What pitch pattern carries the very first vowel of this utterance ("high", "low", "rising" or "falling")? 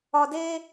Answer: low